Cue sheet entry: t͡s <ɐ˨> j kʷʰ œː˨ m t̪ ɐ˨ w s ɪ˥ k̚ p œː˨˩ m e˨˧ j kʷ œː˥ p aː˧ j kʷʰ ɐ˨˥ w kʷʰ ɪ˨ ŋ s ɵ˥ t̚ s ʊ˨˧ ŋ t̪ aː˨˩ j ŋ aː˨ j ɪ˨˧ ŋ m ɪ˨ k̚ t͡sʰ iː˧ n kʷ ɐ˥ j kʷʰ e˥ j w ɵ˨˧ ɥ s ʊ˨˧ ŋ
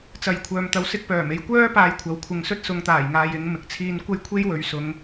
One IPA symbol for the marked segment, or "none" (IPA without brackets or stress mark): ɐ˨